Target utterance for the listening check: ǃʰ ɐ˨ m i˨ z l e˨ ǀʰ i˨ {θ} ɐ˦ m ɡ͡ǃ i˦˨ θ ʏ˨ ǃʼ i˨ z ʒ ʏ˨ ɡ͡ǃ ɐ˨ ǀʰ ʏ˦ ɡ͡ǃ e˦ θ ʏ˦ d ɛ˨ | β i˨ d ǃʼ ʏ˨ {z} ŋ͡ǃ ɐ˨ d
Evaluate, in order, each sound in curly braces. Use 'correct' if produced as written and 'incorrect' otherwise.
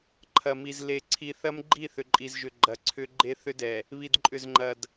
correct, correct

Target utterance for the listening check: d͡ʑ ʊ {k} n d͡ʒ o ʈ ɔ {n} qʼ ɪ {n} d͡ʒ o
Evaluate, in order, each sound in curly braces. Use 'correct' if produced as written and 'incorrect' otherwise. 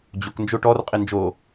correct, incorrect, correct

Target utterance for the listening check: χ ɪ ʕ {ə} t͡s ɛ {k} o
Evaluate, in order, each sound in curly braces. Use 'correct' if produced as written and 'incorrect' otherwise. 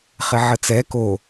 correct, correct

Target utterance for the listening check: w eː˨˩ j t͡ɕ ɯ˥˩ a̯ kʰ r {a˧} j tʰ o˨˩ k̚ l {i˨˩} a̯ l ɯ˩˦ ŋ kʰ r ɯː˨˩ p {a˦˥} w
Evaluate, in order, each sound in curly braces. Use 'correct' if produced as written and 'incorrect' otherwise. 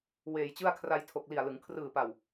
correct, correct, incorrect

